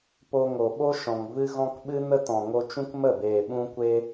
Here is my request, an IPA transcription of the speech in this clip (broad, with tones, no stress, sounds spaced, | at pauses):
p o˧ ŋ o˨ ɓ o˦ ʃ ɔ̃˨ ŋ v ɨ˧ ɣ ɔ̃˧ k ɓ ɨ˦ n ə˦ t ɔ̃˨ ŋ o˧ t͡ʃ ũ˦ k m ə˦˨ b eː˨ ɓ ũ˧ kʷ e˧